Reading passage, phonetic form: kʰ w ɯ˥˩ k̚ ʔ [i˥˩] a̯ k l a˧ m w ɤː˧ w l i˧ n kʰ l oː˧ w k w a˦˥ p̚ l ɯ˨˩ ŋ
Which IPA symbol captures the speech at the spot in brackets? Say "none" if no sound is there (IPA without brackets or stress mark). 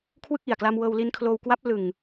i˨˩